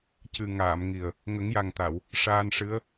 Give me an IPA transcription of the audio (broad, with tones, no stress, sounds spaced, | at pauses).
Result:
c ɨ˨˩ ŋ aː˨˩˨ m ŋ i˨˩ ə̯ | ŋ ə˨˩˦ ŋ j a˨˩ ŋ t̪ a˨˩˨ w | ʂ aː˧ n ʂ ɨ˧˥ ə̯